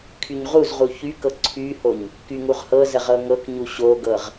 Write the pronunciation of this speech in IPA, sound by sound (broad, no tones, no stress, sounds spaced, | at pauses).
kʰ y ɲ ʁ u z ʁ u ç y k ɤ ǀʰ y h o ɲ | k y ŋ u ʁ h ɤ z ə ʁ ɤ ŋ ɤ k ɲ u ɕ o ɡ ɤ ʁ